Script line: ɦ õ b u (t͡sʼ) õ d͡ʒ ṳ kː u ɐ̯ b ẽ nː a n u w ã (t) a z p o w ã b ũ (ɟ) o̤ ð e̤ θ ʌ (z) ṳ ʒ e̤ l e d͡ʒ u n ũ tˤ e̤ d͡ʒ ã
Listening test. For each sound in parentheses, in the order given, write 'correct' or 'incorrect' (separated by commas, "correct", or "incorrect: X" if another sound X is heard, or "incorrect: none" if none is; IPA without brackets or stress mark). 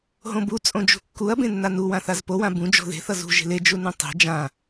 correct, incorrect: θ, incorrect: d͡ʒ, correct